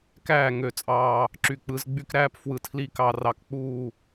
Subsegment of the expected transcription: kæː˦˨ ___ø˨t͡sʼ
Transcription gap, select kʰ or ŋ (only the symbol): ŋ